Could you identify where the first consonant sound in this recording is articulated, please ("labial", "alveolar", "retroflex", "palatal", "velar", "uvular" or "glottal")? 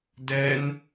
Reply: alveolar